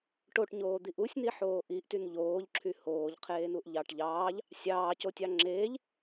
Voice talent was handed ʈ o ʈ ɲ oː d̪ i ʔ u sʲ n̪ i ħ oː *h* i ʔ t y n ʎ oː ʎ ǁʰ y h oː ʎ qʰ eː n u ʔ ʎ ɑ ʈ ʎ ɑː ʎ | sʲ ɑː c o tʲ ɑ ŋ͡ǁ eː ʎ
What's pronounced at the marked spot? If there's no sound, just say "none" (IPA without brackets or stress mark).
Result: ʔ